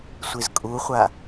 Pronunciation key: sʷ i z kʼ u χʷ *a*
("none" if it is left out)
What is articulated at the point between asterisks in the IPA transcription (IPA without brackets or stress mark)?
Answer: a